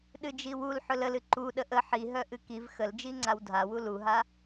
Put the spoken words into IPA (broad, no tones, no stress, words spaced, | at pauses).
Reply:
ɗɨd͡ʒiwul ħɵləlɨ ǃu ɗəʔə ħi ɦœʔɨkiv xəld͡ʒi ŋ͡ǀawdʱawu luɦa